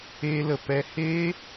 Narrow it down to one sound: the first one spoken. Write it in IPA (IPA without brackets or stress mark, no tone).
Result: eː